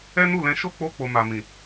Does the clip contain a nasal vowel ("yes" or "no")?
yes